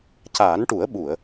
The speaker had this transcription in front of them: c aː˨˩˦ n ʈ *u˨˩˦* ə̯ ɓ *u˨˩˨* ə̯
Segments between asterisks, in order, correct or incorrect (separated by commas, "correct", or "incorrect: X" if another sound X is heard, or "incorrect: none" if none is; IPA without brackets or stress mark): correct, correct